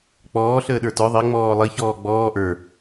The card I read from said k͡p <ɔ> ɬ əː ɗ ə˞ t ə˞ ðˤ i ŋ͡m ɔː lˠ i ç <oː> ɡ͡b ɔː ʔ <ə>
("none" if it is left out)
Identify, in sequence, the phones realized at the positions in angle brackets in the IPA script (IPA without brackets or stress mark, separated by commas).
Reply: ɔː, ɔː, ə˞